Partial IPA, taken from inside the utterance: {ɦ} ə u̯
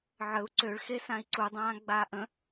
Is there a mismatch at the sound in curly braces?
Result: yes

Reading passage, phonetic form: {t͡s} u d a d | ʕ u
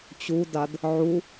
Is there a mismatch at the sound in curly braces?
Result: yes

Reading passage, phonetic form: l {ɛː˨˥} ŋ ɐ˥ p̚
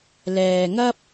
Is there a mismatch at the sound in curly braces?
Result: yes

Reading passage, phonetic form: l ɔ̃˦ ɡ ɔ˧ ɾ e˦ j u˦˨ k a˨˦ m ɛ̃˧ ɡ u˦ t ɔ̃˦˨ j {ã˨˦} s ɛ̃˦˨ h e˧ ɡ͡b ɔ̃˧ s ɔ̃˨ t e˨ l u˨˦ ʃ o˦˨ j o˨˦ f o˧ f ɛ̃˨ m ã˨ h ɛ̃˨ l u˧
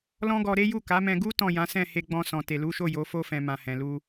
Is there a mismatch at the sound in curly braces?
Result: no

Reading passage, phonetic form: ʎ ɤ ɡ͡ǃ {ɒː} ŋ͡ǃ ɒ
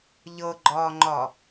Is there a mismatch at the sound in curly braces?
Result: no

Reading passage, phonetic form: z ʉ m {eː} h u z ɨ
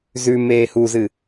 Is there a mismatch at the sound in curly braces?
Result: no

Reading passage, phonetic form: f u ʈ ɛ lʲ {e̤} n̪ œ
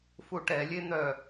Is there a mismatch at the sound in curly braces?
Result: yes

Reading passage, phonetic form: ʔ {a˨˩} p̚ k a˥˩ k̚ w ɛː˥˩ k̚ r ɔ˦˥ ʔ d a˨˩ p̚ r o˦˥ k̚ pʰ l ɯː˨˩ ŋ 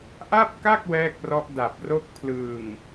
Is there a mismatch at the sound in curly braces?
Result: yes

